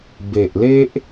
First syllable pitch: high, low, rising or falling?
low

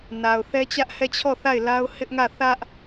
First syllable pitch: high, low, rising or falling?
low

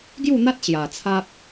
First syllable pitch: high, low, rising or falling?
falling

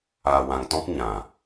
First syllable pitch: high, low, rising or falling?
low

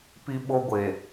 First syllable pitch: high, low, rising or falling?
high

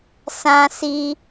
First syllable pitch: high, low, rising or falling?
low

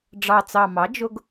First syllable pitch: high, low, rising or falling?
low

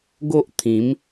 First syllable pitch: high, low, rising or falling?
high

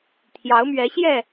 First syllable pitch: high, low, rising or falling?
rising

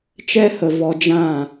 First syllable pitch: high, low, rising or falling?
high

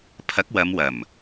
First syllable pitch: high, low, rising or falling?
rising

